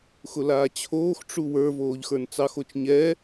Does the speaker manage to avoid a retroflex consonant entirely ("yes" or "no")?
no